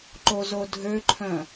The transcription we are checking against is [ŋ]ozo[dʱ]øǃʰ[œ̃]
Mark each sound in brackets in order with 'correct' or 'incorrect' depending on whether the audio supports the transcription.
incorrect: ǃ, correct, correct

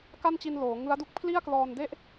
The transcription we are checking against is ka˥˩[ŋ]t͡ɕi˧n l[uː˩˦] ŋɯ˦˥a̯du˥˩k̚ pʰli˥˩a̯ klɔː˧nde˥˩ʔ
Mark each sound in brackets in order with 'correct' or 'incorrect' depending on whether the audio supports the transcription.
incorrect: n, incorrect: oː˩˦

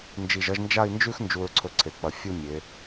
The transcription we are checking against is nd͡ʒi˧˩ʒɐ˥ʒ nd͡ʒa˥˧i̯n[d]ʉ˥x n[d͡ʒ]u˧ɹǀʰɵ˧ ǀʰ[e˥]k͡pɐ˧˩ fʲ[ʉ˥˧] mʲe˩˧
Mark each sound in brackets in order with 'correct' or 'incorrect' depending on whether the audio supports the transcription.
incorrect: d͡ʒ, correct, incorrect: e˩˧, incorrect: u˥˧

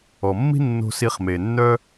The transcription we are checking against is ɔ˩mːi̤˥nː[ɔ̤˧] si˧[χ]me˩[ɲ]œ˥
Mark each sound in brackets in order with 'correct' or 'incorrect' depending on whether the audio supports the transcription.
incorrect: o̤˧, correct, incorrect: nː

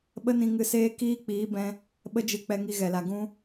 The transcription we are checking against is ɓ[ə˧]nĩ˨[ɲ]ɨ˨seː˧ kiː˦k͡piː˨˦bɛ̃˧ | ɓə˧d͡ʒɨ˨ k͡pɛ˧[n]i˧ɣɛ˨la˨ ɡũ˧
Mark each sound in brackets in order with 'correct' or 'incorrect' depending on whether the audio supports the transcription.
correct, incorrect: ŋ, incorrect: ŋ

